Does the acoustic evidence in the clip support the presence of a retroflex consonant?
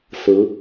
no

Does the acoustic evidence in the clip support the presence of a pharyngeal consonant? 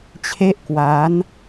no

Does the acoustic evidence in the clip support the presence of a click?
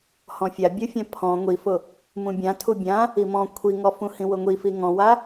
no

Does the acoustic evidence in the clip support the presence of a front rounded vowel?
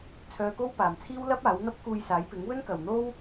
yes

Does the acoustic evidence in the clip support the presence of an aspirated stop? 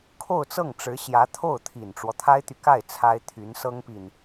yes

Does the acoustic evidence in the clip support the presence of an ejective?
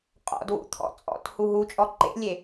yes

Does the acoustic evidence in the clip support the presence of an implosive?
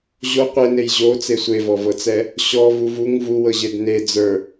no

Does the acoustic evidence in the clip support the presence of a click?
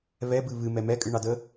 no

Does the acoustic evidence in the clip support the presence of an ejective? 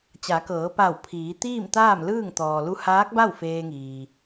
no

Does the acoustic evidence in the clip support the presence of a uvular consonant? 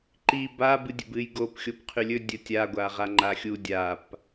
yes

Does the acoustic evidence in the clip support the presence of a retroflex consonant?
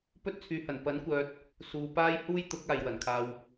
no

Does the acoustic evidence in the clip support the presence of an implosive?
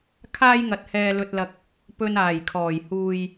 no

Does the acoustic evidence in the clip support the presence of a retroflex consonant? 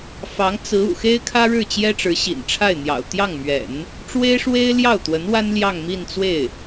yes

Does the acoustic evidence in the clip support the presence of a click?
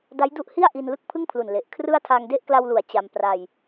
no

